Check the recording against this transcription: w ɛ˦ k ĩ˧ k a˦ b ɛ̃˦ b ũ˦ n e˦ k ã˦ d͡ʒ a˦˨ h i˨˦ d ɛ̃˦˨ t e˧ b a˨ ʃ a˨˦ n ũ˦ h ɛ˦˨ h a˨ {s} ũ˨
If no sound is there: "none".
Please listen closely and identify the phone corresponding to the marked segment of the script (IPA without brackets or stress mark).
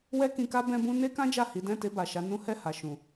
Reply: ʃ